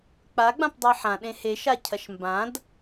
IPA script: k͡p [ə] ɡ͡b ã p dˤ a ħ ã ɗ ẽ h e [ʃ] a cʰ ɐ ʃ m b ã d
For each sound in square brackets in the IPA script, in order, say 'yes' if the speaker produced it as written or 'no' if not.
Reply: no, yes

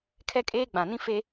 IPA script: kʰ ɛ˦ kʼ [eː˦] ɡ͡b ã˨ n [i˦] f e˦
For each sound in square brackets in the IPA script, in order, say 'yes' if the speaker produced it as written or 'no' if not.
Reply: yes, no

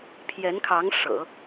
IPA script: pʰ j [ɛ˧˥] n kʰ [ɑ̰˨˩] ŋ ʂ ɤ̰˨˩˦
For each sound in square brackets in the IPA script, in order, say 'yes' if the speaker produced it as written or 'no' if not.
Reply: yes, no

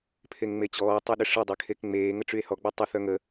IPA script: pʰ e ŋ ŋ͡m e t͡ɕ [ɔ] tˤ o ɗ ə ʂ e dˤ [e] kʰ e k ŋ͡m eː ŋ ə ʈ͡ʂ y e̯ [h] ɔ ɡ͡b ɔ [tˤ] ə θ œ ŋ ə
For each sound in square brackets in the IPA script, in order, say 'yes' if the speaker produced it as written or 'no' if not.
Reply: no, yes, yes, yes

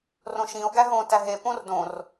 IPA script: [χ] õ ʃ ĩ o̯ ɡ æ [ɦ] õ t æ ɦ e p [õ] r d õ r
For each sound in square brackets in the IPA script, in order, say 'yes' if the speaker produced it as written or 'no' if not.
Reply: no, yes, yes

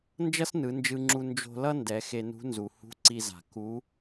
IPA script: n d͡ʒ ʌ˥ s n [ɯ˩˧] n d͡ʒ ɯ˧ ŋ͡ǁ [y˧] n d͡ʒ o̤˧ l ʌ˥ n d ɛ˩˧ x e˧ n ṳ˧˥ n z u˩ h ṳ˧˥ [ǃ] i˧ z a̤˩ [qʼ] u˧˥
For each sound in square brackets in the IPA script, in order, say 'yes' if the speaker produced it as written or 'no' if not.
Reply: yes, no, no, no

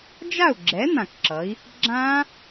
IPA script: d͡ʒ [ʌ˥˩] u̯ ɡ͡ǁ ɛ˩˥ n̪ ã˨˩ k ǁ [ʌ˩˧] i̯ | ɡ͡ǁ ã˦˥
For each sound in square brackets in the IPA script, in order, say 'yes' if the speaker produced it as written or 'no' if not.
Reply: no, yes

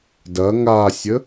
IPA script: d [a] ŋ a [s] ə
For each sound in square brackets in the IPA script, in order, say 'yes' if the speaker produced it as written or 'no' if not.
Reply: no, no

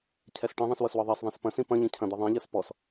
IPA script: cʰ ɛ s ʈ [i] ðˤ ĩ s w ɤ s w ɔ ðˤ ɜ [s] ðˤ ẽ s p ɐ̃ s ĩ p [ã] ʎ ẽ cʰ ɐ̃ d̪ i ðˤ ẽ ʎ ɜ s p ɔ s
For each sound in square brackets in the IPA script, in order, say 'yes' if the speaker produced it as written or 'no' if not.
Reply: no, yes, no

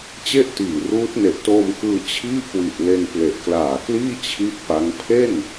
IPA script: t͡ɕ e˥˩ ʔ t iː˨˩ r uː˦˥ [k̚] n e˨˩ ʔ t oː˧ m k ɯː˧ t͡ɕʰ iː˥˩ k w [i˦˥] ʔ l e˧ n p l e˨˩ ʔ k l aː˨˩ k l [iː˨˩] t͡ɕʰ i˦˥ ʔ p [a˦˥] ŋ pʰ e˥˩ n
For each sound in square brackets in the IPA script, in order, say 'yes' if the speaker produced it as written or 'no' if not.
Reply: no, no, no, yes

